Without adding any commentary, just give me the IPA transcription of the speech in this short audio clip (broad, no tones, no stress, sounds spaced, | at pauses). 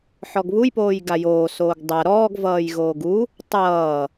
ħ ɔ ɡ β u j p oː j ɡ a j oː s oː ɡ dˤ a ɾ ɔː ɡ v ʌː j ɣ oː ɡ u | tˤ ʌː